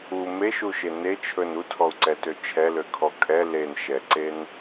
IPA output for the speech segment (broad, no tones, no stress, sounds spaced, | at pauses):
u m e ʃ u ʃ e n e t͡ʃʰ ɵ n u tʰ ɔ u̯ ǀ ɛ t ø t͡ʃʰ ɛ l ø kʰ ɔ kʼ ɛ l e n ʃ ɛ ǀ e n